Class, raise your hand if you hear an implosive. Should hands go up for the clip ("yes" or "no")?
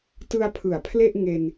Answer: no